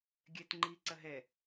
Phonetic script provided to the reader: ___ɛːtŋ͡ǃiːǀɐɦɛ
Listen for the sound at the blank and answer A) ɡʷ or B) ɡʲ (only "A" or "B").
B